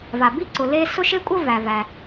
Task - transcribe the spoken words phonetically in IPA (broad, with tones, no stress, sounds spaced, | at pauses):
v a˩ b i˥ ǀ ʊ˩ l e˥ s ʊ˥ ʃ e˥ kʷʼ ə˥ v æ˩ v æ˩